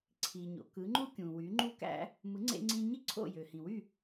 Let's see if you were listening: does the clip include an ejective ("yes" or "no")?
no